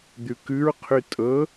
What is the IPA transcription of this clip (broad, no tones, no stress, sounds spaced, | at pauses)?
d̪ ʉ k ʉ ɹ qʰ ʉ tʼ ɤ